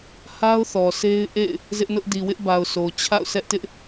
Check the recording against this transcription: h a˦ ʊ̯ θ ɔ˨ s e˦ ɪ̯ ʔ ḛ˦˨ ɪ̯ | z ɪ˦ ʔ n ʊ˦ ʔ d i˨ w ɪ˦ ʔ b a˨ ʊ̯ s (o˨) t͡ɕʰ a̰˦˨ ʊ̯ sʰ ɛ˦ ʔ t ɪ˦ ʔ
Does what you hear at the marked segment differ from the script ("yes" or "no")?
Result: no